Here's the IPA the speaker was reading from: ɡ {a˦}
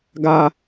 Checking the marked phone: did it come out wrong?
no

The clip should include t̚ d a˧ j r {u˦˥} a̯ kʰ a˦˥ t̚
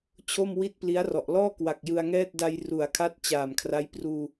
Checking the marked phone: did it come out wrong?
yes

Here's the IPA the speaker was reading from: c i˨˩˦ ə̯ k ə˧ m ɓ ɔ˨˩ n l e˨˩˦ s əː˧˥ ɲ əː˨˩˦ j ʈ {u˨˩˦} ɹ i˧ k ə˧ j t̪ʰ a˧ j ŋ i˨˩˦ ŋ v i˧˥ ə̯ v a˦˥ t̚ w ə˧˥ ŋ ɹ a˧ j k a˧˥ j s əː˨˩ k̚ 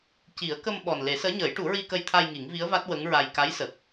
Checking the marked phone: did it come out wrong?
no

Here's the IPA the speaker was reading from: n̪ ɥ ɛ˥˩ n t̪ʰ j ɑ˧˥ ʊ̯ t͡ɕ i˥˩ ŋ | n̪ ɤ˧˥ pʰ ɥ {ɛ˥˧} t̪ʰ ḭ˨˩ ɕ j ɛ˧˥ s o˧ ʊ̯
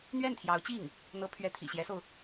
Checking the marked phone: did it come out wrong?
yes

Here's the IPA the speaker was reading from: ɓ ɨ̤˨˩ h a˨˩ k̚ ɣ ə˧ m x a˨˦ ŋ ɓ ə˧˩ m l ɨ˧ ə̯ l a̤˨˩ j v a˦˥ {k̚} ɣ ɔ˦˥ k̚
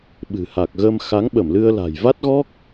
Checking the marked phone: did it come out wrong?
yes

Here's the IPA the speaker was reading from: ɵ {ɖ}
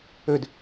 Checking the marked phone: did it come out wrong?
yes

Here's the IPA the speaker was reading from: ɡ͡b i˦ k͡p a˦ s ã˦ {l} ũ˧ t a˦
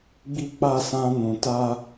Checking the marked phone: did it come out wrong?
yes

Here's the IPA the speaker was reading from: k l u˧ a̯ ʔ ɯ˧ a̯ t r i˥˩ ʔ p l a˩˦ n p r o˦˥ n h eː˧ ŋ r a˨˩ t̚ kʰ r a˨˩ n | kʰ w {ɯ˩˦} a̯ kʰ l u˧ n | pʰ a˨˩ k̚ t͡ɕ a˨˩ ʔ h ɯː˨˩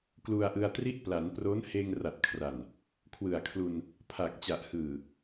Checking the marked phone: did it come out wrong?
yes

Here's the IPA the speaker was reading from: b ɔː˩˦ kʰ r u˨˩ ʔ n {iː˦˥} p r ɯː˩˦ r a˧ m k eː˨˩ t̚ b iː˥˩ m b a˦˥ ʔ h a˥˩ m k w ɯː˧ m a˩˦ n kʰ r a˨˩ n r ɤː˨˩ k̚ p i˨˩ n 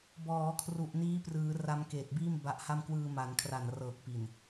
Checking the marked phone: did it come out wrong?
no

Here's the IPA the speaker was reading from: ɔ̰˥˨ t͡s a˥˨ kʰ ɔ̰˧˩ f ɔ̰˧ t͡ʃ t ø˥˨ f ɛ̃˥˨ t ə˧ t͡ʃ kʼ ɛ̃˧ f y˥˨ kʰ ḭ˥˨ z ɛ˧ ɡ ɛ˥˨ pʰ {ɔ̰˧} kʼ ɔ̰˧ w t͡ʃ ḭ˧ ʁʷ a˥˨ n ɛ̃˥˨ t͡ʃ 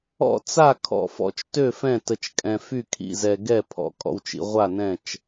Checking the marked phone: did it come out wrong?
no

